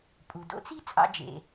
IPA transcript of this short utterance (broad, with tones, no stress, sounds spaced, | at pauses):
pʼ u˩ d o̰˧˥ t͡s i˥ t͡sʼ ɑ̰˧ d͡ʒ ḛ˩